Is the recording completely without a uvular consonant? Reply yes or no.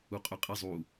no